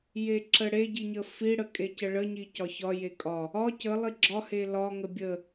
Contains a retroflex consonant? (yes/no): yes